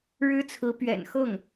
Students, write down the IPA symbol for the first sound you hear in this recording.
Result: ɻ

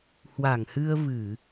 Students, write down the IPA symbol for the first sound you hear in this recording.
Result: h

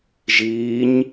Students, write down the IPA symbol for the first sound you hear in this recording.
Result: ʒ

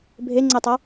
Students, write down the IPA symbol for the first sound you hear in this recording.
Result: bʱ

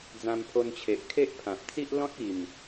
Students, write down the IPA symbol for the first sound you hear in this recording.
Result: d͡z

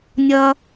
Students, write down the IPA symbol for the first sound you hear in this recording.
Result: nʲ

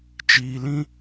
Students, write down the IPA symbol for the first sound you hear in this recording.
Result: t͡ʃ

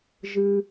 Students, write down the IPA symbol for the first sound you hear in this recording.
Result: ʒ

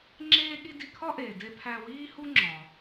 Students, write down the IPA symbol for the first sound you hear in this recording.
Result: ŋ͡ǁ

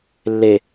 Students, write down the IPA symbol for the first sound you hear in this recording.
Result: lː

